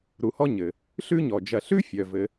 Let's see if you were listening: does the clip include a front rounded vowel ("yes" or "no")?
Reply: yes